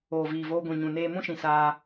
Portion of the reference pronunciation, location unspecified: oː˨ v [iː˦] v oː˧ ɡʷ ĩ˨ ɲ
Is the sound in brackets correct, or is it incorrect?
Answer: incorrect